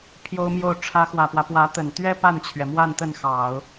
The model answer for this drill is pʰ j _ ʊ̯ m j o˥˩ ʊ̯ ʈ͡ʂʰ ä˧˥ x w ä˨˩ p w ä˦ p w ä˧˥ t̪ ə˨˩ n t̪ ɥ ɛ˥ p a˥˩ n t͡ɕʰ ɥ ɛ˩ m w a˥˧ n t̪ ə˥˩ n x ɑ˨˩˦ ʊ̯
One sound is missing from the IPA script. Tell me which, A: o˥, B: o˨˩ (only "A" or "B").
A